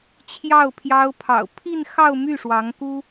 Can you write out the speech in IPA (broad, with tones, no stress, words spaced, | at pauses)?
t͡ɕʰjɑ˥˩ʊ̯pʰjɑ˥ʊ̯ pʰɑ̰˨˩ʊ̯pʰi˥˧nxɑ˥˧ʊ̯ my˥˩ʂwɑ˧˥ŋku˥